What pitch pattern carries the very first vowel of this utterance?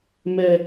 high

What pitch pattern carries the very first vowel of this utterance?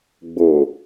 low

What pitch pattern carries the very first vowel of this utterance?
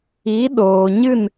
rising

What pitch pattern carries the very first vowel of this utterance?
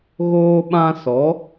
high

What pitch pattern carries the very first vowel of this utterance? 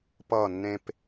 falling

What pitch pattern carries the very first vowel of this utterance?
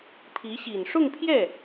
rising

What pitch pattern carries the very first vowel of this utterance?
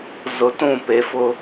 low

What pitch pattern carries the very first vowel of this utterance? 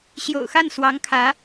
low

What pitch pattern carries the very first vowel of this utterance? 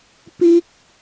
high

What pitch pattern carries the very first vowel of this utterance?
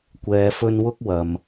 low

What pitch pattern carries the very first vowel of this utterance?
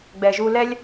low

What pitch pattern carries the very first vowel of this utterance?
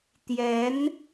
rising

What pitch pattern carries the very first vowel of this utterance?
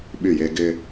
falling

